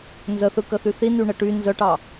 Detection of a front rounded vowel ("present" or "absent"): present